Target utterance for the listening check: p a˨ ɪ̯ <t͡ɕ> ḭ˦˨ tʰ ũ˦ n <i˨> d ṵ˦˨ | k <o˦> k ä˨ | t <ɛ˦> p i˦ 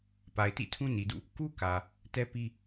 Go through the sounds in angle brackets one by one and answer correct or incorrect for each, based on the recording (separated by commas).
incorrect, correct, incorrect, correct